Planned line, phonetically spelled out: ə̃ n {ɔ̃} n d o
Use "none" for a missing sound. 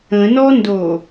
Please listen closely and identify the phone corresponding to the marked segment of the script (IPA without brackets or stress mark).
ɔ